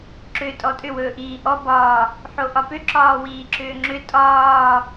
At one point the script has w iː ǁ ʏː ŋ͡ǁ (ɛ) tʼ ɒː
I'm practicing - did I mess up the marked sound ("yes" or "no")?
yes